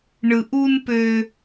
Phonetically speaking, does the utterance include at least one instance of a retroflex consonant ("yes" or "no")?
yes